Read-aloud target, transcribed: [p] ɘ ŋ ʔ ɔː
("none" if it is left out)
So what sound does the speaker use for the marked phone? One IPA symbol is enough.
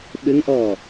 ɓ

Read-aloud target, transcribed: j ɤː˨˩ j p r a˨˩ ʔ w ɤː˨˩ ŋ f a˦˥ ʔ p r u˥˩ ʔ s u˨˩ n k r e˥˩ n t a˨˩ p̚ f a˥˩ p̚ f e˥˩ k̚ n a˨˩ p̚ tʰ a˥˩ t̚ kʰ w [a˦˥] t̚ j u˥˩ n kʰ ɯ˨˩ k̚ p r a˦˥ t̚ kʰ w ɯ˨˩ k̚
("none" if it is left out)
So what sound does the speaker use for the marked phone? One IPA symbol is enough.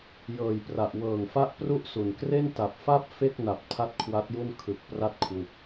a˦˥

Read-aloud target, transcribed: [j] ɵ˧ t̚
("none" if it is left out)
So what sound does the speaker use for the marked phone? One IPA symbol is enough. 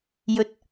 j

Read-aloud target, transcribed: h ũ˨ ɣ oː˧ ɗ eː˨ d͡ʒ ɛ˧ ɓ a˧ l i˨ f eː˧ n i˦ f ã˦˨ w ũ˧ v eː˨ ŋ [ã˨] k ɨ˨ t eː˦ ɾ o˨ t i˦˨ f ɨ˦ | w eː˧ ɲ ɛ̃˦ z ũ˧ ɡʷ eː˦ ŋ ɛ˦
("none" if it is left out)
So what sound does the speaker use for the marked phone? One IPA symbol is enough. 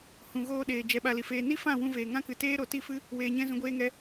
ã˦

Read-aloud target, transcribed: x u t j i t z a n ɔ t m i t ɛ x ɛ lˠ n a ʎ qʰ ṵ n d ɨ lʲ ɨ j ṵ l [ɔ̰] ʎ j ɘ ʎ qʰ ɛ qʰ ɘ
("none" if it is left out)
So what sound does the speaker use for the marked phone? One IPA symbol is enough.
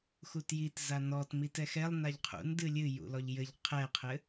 ɔ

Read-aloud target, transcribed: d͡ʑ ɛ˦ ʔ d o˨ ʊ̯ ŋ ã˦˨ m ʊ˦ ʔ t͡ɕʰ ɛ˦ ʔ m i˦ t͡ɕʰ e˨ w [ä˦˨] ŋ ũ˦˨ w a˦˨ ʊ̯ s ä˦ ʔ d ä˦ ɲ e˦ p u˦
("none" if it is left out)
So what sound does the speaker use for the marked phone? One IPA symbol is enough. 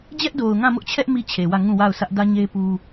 ä˦˨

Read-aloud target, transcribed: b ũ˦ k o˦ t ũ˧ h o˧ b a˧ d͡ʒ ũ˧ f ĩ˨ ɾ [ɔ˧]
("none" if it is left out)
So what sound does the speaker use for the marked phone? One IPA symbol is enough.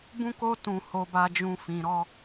ɔ˧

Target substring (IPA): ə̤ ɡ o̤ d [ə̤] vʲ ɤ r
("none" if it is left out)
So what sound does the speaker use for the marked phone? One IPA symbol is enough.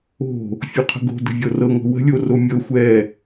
ə̤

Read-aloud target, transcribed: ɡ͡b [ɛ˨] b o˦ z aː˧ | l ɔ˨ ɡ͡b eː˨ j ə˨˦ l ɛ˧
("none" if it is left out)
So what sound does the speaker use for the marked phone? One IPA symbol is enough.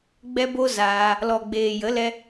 ɛ˦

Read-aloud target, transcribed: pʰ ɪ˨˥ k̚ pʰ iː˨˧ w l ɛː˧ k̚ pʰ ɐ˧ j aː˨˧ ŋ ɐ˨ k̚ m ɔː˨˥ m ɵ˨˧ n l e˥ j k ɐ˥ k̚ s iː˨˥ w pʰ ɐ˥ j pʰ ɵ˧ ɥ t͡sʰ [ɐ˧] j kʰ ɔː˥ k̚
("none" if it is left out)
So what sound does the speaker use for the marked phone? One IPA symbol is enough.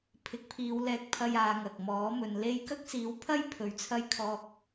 ɐ˥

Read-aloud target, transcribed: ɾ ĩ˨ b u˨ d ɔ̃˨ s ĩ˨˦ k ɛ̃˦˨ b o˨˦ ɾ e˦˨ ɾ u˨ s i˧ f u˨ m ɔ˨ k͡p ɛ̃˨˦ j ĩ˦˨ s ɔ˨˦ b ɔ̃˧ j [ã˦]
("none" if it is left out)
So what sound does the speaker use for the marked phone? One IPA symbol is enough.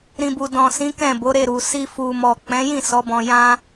ã˦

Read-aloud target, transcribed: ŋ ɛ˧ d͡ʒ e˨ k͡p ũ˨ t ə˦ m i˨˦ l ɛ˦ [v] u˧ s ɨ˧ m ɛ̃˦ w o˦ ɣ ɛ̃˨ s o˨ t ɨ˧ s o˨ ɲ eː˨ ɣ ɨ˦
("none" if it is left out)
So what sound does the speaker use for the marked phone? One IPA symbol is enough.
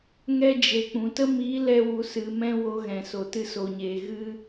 w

